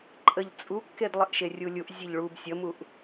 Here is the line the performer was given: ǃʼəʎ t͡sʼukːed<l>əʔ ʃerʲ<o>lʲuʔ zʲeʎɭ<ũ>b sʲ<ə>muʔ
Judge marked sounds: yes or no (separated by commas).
no, no, no, yes